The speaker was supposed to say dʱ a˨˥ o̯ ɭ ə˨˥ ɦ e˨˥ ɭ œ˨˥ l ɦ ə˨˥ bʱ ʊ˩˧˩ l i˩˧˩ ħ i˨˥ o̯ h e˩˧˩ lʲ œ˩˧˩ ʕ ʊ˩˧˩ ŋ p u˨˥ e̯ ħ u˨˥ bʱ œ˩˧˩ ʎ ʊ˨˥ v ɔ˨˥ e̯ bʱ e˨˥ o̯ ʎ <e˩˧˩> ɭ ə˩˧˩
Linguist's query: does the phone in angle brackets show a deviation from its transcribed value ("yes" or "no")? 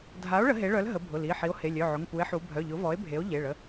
no